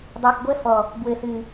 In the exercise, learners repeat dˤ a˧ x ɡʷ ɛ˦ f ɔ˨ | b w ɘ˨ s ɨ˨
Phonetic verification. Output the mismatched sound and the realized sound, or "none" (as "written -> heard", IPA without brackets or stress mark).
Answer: none